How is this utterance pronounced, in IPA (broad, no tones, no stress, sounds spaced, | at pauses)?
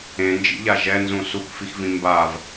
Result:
ẽ n d͡ʒ ḭ ʎ a ʒ ɛ n z ũ s u k f i x v ĩ m b a v